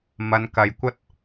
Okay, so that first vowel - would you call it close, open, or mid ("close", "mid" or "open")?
open